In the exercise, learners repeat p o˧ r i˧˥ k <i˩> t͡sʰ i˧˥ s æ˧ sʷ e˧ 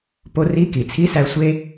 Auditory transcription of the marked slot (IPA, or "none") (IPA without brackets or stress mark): i˩